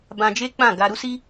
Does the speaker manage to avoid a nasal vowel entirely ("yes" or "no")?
no